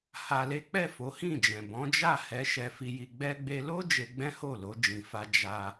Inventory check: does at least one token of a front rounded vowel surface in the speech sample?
no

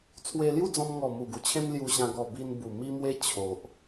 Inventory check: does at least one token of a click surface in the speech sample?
no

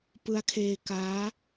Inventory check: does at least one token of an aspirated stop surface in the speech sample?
yes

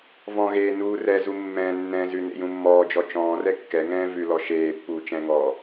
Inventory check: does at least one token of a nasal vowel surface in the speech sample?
yes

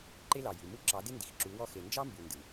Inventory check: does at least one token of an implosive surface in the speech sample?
no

